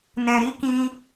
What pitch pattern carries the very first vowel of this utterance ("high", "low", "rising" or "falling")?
low